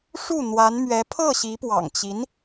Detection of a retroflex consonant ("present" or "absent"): present